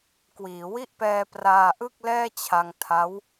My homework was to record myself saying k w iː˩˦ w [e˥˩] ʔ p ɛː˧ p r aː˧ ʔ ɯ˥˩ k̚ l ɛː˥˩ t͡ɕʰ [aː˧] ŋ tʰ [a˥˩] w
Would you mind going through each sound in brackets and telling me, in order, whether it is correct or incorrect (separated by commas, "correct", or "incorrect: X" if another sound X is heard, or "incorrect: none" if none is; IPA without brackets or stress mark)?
incorrect: i˥˩, incorrect: a˧, incorrect: a˦˥